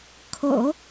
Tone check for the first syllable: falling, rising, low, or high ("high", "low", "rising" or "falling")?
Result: low